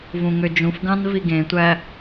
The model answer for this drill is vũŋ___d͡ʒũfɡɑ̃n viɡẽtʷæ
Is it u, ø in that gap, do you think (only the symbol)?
ø